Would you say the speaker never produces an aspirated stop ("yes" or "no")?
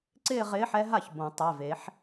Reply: yes